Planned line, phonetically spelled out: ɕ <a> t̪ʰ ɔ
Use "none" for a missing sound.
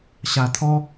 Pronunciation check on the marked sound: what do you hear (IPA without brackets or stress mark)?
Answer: a